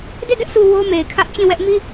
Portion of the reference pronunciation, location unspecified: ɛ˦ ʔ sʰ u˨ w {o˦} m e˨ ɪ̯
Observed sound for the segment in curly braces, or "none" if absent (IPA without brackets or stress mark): o˦